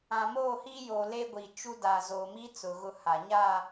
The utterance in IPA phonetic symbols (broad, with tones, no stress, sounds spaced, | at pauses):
ã˨ m oː˦˨ h i˦ j oː˨ l e˦ ɡʷ i˨ t͡ʃ u˦ d a˨ z oː˨ m i˦ t͡s ʊ˨ ɣ ʊ˦˨ h a˨ ɲ a˦˨